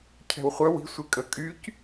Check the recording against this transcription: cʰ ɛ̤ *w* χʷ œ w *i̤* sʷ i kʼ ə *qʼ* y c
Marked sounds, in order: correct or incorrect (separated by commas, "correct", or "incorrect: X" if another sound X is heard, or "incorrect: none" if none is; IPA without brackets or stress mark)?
correct, correct, incorrect: kʼ